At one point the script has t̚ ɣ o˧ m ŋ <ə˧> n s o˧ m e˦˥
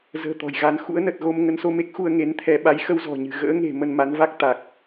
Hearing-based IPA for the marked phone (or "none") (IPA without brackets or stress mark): ə˨˦